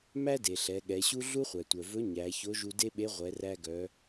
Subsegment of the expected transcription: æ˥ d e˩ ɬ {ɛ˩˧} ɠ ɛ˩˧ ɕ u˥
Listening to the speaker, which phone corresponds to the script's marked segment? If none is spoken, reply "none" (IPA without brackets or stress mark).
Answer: ɛ˩˧